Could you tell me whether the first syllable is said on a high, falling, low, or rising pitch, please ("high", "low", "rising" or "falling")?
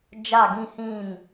falling